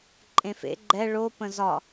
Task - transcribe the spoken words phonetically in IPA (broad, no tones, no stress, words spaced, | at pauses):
ǃʼẽfḛ ɡ͡ǃɛ ɭo pə̃zɒ